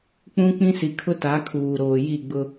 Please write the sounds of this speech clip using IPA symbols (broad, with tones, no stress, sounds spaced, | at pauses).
k͡p ũ˦ k͡p ĩ˦ s i˨ kʰ ʊ˦ t a˨˦ kʰ uː˨ ɾ oː˨ j i˦˨ ɡ͡b ʊ˦